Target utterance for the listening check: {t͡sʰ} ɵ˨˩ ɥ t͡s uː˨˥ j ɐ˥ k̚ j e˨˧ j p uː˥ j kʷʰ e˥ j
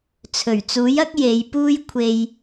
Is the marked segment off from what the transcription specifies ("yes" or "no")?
no